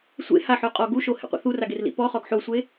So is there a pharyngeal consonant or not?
yes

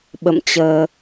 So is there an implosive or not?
yes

